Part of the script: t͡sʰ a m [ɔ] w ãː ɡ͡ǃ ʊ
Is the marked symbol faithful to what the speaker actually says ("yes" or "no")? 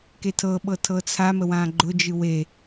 no